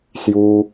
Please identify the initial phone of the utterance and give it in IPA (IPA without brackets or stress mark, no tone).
s